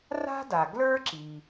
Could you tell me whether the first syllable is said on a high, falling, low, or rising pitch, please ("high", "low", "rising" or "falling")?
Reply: high